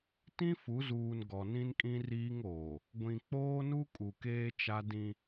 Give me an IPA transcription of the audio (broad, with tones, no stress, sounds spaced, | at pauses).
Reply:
t ĩ˦ f u˨˦ z uː˨ n ɡ ɔ˨ n ĩ˦ n kʼ ĩ˦ r iː˦ ŋ oː˨ | ɡʷ ĩ˨ k͡p oː˦ n u˦ kʼ u˨ k eː˦ t͡ʃ a˦ d ĩ˦